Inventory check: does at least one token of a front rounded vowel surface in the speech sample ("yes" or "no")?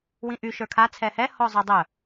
yes